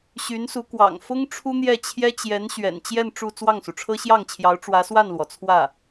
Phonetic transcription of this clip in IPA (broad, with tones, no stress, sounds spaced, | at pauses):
ɕ y˧˥ n s u˧˥ k w ɑ̰˨˩ ŋ f ʊ˥ ŋ ʈ͡ʂʰ u˥ n̪ j ɛ˥˩ t͡ɕʰ j ɛ˥ t͡ɕ j ɛ˧˥ n ɕ ɥ ɛ̰˨˩ n t͡ɕ j ɛ˥˧ n ʈ͡ʂ u˥˧ t͡s w ɑ˥˩ ŋ s u˩ ʈ͡ʂʰ ɤ˥ ɕ j ɑ˥˩ ŋ t͡ɕʰ j ɑ˧˥ ʊ̯ ʈ͡ʂ w ä˧˥ s w a˥˩ n l w ɔ˩ t͡sʰ w ä˥˩